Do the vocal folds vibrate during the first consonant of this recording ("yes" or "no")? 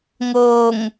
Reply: yes